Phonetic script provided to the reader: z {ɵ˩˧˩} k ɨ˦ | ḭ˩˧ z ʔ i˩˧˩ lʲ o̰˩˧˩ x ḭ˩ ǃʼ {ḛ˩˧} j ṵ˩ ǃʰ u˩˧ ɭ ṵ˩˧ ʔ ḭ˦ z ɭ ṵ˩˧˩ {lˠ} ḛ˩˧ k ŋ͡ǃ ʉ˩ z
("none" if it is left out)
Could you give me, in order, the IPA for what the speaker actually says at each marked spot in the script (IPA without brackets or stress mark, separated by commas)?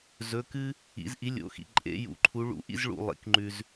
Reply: ɵ˩˧˩, ḛ˩˧, lˠ